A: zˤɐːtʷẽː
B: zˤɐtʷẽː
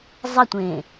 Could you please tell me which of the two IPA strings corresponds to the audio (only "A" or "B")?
B